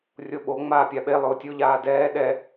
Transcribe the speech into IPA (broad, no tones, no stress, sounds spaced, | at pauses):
rʲ o ɓ o ŋ͡m aː pʲ a ɓ e lˠ ʊː tʲ o ʎ aː d ɛː ɗ ɛ